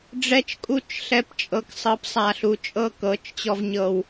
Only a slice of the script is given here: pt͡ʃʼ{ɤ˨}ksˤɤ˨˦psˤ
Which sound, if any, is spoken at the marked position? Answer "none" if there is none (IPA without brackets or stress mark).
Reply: ɤ˨